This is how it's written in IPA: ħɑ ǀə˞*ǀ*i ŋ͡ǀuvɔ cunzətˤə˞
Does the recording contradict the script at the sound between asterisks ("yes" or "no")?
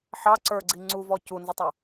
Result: yes